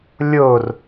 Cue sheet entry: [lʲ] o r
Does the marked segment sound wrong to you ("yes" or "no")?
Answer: no